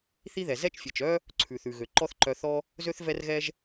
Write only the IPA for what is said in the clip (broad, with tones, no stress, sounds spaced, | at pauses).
θ i˥ ð ɛ˩ z ɛ˥ t͡ʃ fʲ ɛ˩ t͡ʃ œ˥ | ǀʰ ʉ˩ θ ʉ˩ ɣ ø˩ ǃ ɔ˥ θ ǃ œ˧ θ ɔ˥ | z ø˥ θ v ɛ˥ r ɣ ɛ˥ ʒ